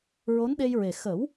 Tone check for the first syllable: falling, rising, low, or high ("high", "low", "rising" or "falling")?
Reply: rising